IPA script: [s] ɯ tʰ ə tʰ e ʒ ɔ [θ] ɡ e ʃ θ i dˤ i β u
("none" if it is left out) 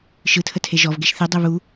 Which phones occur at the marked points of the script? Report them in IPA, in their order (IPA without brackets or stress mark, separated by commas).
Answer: ʃ, v